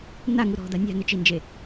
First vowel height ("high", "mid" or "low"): low